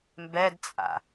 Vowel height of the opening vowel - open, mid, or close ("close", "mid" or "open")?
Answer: mid